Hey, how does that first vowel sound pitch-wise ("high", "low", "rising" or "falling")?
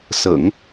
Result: low